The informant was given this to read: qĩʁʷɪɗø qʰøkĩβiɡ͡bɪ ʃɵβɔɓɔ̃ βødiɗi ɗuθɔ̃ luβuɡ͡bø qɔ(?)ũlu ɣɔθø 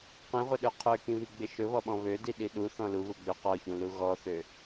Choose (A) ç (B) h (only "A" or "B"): A